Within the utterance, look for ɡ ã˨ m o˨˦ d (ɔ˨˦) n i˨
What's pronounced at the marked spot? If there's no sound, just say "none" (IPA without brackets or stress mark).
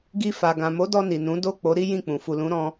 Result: ɔ˧